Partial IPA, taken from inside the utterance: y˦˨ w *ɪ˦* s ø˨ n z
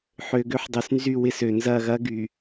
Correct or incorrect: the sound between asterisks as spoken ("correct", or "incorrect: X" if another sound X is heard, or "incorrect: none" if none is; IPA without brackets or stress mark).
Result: correct